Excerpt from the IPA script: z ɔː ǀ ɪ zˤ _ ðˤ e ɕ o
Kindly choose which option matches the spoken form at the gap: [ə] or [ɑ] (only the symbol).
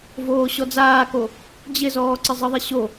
ə